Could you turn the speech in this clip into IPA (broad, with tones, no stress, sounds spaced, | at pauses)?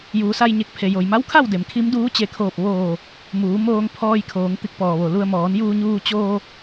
j uː˩˧ s a˧ j ɲ e˧˩ k̚ pʰ e˩ j o˩ j m a˧˥ w kʰ a˥˨ w d e˩ m kʰ i˧˥ m d uː˧˥ t͡ɕ e˧˩ kʰ oː˧˩ p̚ ʋ oː˧˩ | m uː˩˧ m oː˧ ŋ pʰ ɔː˧ j kʰ oː˩˧ ŋ t̪ i˧˥ k̚ p ɔː˩ ʋ o˩ l u˧ ə̯ m ɔː˩˧ n j uː˧ ɲ uː˧ t͡ɕ oː˧